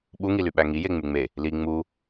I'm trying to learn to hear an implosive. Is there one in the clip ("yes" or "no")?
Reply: yes